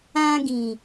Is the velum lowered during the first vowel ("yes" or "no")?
yes